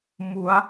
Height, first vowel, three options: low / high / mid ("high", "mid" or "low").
high